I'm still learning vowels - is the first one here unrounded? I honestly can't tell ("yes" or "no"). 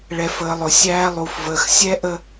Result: yes